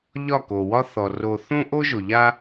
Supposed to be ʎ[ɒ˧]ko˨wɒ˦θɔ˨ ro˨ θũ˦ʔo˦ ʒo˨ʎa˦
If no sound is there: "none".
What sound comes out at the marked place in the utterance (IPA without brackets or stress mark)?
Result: ɒ˦˨